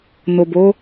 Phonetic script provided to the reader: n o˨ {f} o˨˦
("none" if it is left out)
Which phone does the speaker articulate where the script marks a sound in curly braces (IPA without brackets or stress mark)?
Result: b